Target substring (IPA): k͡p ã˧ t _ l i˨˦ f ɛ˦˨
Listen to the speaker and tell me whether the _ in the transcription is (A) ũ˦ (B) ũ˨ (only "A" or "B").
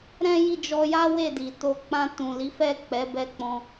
B